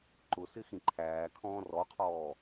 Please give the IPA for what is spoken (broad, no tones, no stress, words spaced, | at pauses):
ǃʊsɪ xĩǃʰæːkʰɔ̃ː rɔqʰɔː